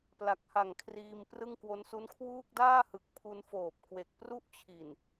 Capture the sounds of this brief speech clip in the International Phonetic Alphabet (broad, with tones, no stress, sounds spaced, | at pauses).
p l a˨˩ k̚ h a˨˩ ŋ kʰ r iː˧ m p r ɯ˥˩ ŋ k w o˦˥ n s u˦˥ n kʰ w uː˥˩ k̚ d aː˥˩ h ɯ˨˩ k̚ pʰ u˧ n f oː˨˩ p̚ k w e˨˩ k̚ p r u˥˩ ʔ t͡ɕʰ i˨˩ n